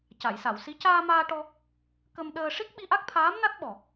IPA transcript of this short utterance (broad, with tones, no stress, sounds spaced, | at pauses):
c a˨˩˨ j s a˨˩˨ w s i˧˥ c aː˧ m aː˧ ʈ ɔ˧ | k ə˧ m ɗ əː˧ ʂ i˦˥ k̚ ɓ i˧ ʔ a˦˥ k̚ t̪ʰ aː˧˥ m n a˦˥ t̚ ɓ ɔ˨˩